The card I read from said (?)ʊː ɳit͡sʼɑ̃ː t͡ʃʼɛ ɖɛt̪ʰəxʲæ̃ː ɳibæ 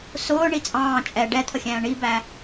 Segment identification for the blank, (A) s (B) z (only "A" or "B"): A